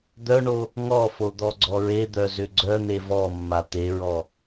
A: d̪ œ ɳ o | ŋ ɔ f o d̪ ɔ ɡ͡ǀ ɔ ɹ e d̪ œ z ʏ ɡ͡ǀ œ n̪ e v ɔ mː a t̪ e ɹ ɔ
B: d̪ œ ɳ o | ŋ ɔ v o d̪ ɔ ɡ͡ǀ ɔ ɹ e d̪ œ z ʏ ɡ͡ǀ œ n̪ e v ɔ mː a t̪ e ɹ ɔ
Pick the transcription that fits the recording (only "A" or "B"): A